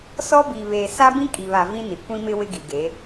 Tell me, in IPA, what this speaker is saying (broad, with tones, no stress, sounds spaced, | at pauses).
s ɔ˦ b iː˨ β eː˨ s a˦ b ĩ˦ kʼ i˨ β a˨ v ĩ˦ n i˨ kʷ ĩ˦ m ɪ˦ w ɪ˦ ɡ i˨ ɡ e˨˦